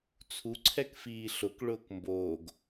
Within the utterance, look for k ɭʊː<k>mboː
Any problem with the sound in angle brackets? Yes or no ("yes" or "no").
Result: no